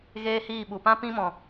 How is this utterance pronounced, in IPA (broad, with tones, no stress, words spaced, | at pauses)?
ɣeː˦hiː˦˨ɓu˨ pã˦ pĩ˦mɔ̃˨